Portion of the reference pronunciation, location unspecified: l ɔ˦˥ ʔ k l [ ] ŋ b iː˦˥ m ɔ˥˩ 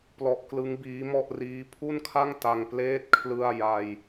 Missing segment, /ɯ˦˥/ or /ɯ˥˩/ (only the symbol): ɯ˦˥